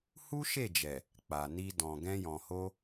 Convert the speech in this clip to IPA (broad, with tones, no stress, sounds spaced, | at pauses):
h u˦ ʃ e˦˨ d͡ʒ ɛ˨ | k͡p a˨ n i˧ d ɔ̃˨ ɡ ɛ̃˧ j ɔ̃˨ h o˧